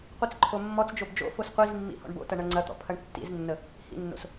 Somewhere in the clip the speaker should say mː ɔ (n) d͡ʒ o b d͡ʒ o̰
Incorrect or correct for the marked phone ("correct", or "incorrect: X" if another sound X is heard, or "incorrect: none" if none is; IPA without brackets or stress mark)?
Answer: incorrect: t͡s